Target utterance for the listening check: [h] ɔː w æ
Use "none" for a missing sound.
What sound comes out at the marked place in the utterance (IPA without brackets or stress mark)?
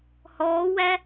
h